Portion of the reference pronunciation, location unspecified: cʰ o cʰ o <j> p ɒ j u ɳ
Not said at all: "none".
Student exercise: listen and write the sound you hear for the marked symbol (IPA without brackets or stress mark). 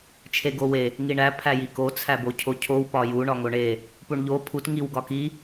w